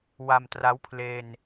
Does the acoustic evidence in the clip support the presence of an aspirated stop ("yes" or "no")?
yes